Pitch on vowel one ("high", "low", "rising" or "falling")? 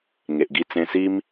low